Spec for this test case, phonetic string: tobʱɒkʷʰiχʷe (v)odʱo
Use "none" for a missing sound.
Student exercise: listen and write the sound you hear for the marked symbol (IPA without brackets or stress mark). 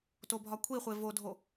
v